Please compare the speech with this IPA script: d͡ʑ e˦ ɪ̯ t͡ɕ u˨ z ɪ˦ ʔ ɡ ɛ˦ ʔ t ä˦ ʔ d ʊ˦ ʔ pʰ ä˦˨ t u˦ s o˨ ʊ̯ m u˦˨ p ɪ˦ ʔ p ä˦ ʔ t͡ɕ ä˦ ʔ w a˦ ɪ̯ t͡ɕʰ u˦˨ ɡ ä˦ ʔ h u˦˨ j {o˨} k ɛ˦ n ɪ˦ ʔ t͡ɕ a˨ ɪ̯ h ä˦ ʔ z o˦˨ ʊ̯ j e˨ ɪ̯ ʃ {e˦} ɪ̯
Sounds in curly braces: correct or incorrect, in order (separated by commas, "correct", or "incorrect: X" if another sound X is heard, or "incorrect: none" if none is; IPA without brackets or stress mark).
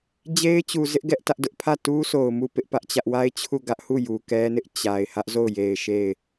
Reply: incorrect: u˨, incorrect: e˦˨